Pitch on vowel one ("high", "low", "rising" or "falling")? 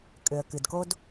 low